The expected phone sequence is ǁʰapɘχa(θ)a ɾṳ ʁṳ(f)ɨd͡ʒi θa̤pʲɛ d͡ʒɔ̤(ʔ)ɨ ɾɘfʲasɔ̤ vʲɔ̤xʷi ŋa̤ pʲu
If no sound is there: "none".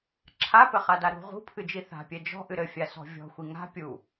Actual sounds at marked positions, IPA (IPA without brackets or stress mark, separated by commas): d, pʰ, ʔ